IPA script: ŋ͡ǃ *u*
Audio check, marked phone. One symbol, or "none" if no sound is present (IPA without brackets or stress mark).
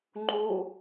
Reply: u